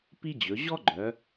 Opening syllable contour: high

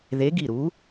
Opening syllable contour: rising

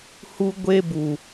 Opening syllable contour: high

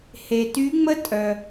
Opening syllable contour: low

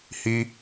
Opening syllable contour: high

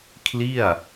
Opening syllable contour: falling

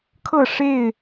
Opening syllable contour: falling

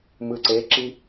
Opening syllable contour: low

